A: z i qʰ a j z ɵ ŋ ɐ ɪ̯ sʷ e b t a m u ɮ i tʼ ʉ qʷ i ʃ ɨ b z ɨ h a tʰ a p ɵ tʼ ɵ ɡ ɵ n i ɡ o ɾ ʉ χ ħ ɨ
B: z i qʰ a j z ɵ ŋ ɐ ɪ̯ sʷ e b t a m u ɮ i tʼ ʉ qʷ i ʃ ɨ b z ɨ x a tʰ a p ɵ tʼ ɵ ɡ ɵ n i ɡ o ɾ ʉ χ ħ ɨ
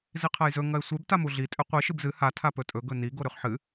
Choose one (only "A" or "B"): A